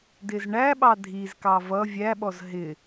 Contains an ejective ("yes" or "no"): no